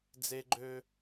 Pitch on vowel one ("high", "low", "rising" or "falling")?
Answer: high